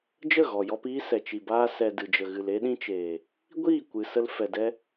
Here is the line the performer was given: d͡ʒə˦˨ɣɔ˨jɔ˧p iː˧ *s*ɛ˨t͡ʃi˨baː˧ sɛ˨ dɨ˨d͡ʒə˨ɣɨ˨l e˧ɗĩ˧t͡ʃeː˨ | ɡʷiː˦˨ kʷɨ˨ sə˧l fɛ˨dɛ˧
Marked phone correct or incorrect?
correct